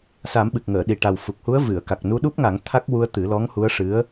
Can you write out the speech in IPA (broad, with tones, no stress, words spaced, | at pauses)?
sa˨˩˦mɓɨ˨˩k̚ŋəː˨˩˨ɗi˨˩ ʈa˨˩wfu˨˩k̚hu˧˥ə̯ vɨ˨˩˨ə̯ka˨˩k̚ nu˧ɗu˦˥p̚ŋa˨˩˦ŋ t̪ʰa˦˥k̚ wu˧ə̯t̪ɨ˨˩˦lɔ˧˥ŋ hu˧˥ə̯ʂɨ˧˥ə̯